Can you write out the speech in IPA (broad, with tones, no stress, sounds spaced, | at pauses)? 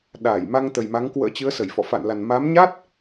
ɗ aː˧˩ j m a˧ ŋ t̪ ə˨˩ j m a˨˦ ŋ k w ə̰ː˧˥ t͡ɕ ɨ˨˦ ə̯ s ə˧˩ j f ɔ̰˧˨ f a̰˧˨ n l a˨˩ n m a˨˦ m ɲ a˦˥ t̚